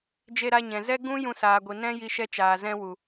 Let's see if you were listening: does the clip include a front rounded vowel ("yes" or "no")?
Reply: no